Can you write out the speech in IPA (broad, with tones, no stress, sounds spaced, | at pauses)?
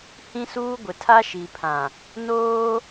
h ĩ˦ s uː˦ ɡʷ ɪ˨ tʰ a˦ ʃ i˨ pʰ ã˨ | n oː˦